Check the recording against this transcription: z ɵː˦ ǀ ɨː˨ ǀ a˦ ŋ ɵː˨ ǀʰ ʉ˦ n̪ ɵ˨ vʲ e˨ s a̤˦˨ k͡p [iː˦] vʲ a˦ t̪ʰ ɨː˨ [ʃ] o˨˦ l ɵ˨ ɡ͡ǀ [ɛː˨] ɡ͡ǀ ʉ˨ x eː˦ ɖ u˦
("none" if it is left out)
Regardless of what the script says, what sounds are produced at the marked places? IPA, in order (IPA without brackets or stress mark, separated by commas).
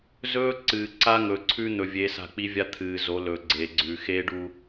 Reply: i˦, z, eː˨